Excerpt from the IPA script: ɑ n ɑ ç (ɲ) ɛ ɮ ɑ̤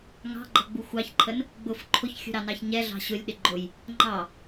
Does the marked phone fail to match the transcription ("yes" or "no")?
no